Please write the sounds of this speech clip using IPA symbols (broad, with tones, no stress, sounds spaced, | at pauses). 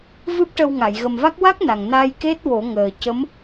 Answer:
v ɨ˦˥ p̚ ʈ ə˧ w ŋ a˨˩˨ j ɣ ə˨˩ m v a˦˥ k̚ w a˦˥ k̚ n a˨˩ ŋ n a˧ j k e˦˥ t̚ w o˨˩˦ ŋ əː˨˩ c ə˧˥ m